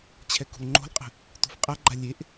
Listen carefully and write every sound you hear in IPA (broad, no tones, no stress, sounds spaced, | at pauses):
t͡ɕʰ ɛ k ṳ l ŋ͡ǃ o̤ l qʼ ə̤ | t ṳ f qʼ a ɡ͡ǃ a lʲ e ʔ